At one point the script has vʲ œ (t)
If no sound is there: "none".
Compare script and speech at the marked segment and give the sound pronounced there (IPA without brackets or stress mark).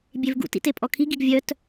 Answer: t